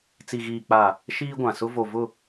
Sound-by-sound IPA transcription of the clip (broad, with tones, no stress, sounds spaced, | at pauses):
t͡s i˨ ɣ iː˨ k͡p a˨ | ʃ iː˦ ɡʷ ã˨ s ʊ˦ v o˨ v ʊ˦˨